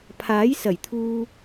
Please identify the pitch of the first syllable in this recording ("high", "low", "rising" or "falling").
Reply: rising